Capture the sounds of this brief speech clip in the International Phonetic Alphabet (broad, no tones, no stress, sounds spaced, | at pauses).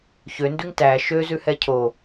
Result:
ç ø n d ʉ ŋ t æ ʃ ø z ʉ h ɛ cʰ o